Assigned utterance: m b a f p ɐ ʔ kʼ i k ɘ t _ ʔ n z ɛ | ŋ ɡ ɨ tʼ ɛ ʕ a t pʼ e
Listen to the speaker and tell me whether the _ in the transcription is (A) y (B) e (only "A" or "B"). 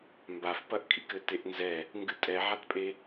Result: B